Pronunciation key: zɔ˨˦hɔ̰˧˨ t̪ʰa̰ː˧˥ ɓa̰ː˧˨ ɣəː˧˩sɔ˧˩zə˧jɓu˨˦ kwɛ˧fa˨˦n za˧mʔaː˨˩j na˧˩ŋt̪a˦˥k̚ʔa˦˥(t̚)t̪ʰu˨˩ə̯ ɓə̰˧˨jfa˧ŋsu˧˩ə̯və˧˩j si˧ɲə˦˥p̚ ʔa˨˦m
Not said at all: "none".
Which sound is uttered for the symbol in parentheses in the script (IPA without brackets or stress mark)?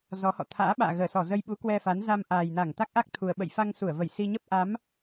k̚